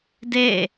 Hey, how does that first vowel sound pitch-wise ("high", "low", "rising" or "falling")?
falling